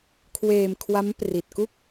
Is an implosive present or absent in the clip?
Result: absent